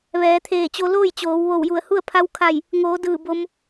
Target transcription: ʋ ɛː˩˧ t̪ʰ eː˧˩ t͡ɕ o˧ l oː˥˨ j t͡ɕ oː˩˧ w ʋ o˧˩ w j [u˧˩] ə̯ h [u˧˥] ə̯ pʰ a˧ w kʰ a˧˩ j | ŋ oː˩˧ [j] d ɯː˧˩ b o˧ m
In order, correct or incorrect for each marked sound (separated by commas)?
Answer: correct, incorrect, incorrect